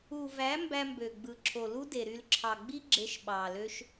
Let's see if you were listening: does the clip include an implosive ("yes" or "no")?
yes